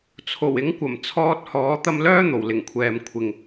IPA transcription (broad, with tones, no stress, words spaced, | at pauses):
t͡sʰo˨˩wɪ˨˥ŋkʷɐ˨˩m t͡sʰɔː˧t̚hɔː˨˥ t̪ɐ˧mlœː˥ n̪o˨˩wlɪ˨˩ŋkʷʰɛː˨m kʷʰɪ˨ŋ